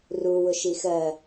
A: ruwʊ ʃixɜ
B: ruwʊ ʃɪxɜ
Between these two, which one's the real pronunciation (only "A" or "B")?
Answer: A